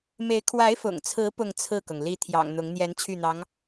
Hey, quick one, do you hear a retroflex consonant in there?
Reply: no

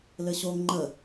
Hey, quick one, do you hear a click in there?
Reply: yes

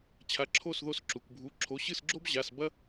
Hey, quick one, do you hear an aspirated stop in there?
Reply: yes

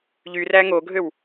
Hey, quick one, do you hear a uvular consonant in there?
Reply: no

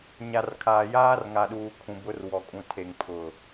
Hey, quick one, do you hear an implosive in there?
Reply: yes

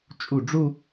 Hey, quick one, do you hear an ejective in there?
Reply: yes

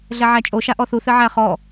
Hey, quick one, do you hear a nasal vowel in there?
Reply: no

